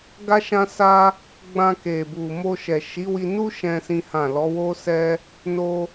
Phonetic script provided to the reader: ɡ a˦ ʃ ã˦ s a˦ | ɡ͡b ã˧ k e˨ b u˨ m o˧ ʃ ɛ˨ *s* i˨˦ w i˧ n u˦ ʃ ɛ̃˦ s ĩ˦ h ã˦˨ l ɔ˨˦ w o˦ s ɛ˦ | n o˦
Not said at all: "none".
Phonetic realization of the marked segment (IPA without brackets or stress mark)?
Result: ʃ